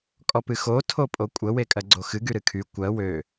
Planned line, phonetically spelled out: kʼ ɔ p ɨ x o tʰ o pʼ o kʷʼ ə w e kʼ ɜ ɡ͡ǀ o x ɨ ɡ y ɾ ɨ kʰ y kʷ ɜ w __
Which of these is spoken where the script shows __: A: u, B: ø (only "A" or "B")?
B